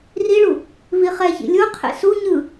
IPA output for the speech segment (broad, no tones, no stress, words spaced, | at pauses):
riɭu | viχɛçḭ lʲoqʰḛ su ɲɯ